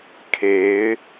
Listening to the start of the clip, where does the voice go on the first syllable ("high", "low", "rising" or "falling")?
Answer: rising